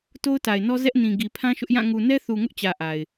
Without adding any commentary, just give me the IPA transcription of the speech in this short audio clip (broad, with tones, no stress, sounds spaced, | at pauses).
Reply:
t o˦ ʊ̯ t a˨ ɪ̯ n ɔ˦ z ɛ˦ ʔ n ĩ˨ ɡ i˨ pʰ ã˦ ʃ ʊ˦ ʔ j ã˦˨ ŋ u˨ n ɛ˦ θ u˨ ŋ ʊ˦ ʔ t͡ɕ ä˨ ʔ a˨ ɪ̯